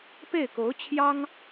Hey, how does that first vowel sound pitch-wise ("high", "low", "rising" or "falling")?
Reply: falling